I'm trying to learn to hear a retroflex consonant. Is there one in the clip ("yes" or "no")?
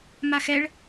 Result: yes